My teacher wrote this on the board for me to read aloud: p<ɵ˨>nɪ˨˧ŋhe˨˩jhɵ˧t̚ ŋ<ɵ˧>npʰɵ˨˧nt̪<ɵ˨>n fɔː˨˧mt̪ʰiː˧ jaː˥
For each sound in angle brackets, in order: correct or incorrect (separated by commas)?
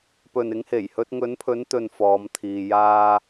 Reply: correct, incorrect, correct